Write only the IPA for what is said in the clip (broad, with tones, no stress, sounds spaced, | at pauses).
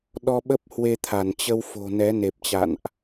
ɗ ɔ˧ ɓ ə˦˥ p̚ h w e˧ t̪ʰ a˧˩ n t͡ɕ ə˧ w f o̤˨˩ n ɛ˨˦ n e˨˩ p̚ t͡ɕ a̰˧˨ n ʔ